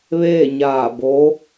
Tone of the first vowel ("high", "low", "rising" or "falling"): falling